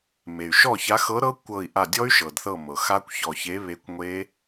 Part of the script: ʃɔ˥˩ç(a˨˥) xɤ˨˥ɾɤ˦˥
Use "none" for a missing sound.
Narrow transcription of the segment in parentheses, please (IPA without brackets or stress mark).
a˨˥